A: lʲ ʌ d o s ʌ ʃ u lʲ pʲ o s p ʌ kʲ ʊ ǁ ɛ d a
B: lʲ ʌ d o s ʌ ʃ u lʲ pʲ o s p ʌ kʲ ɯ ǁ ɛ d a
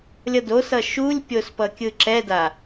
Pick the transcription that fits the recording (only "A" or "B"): B